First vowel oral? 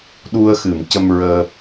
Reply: yes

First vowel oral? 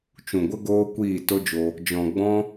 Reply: no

